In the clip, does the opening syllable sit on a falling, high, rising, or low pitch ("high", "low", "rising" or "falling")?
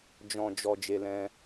low